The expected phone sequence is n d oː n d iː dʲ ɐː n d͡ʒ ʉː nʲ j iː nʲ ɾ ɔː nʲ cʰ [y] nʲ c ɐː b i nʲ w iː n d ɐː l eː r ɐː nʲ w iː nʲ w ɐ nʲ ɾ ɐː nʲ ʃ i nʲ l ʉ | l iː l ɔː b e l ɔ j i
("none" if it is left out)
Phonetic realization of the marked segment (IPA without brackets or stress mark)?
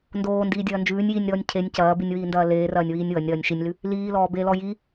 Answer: e